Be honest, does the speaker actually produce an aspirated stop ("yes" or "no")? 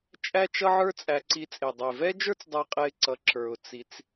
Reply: no